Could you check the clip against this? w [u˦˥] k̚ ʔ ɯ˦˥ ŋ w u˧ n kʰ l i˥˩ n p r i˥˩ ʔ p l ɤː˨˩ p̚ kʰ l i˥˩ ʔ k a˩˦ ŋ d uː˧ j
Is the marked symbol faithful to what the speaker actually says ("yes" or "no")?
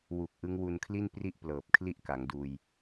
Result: no